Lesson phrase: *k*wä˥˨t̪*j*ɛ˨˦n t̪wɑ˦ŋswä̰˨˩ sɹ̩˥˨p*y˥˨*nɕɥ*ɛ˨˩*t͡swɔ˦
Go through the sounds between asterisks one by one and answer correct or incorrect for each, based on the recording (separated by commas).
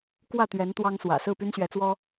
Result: correct, incorrect, incorrect, incorrect